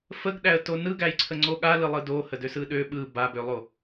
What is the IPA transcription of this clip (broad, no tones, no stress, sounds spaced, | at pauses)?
f ə ɡ ɗ æ ə̯ t o n ɯ ɡ æ j ǀʰ ə ŋ͡ǀ o ɠ a l ɯ lˠ ɯ d o h ə d ø s ɯ ɗ ø ɓ ɯ b a b ø lˠ o